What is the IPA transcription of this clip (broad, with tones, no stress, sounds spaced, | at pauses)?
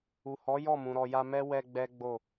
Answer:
u˨ h ɔ˨˦ j ɔ˦˨ m ũ˨ ɾ ɔ˨ j a˧ m ɛ˦ w ɛ˧ ɡ͡b ɛ˦ ɡ͡b o˦˨